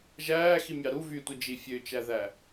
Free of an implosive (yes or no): yes